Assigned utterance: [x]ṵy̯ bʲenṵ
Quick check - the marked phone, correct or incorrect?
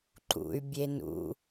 incorrect